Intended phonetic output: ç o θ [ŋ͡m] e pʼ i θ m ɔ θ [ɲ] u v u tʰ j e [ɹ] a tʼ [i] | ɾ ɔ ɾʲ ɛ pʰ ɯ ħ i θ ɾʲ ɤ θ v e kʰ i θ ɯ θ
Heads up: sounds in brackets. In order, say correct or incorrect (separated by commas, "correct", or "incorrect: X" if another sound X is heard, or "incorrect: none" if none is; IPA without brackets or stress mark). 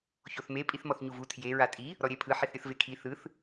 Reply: incorrect: m, correct, correct, correct